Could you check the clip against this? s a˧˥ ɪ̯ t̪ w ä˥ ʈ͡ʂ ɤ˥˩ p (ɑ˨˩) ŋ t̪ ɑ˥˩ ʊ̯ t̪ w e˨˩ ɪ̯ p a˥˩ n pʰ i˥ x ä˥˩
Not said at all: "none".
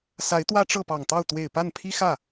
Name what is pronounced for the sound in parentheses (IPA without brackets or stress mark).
ɑ˨˩